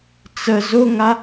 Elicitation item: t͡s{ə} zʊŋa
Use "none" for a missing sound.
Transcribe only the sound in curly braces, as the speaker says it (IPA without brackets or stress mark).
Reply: ə